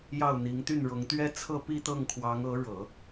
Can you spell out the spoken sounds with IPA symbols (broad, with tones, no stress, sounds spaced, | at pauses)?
j ɑ˥˩ ʊ̯ n̪ i˧˥ ŋ t̪ y˥˩ n ɻ ʊ˧˥ ŋ t̪ ɥ ɛ˥ t͡sʰ ɤ˥˧ p i˥˧ t̪ ɤ˥˩ ŋ kʰ w ɑ˧˥ ŋ ɤ˧˥ ɻ ɤ˨˩˦